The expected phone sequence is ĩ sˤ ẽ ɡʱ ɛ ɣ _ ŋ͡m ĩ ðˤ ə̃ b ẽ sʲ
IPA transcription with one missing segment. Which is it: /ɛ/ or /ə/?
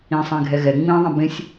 ɛ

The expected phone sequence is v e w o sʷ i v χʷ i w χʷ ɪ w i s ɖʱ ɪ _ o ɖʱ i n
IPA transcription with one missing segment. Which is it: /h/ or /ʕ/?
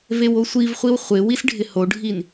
h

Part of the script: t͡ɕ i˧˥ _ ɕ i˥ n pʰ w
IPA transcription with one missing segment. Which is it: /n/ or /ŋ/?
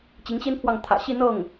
ŋ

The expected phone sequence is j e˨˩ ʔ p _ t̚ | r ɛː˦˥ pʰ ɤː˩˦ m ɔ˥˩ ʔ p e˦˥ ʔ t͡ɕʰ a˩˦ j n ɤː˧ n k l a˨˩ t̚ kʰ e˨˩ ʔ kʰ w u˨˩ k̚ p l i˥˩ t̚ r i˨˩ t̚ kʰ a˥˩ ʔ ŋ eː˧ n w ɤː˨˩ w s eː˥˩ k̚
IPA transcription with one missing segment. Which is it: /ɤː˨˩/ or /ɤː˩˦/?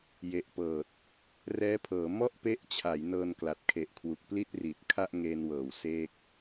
ɤː˨˩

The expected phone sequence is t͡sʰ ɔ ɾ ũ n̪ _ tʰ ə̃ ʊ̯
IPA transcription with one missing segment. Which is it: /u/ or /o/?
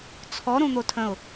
o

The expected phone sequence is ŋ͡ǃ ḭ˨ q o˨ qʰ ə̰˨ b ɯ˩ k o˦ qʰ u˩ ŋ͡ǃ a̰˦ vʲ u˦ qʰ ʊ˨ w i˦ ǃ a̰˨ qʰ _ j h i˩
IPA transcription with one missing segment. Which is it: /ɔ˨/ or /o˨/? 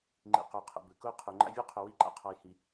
ɔ˨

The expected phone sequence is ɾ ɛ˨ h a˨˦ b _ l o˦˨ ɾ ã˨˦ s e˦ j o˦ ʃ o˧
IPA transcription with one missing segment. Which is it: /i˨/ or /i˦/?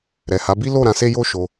i˦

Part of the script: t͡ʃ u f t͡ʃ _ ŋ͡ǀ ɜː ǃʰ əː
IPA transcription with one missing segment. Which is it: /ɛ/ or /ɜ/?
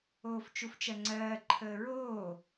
ɜ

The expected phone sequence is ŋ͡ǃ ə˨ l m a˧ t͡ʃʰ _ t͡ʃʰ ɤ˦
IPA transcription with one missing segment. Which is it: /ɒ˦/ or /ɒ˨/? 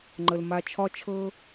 ɒ˦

